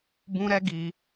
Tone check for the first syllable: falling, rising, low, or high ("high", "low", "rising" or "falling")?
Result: high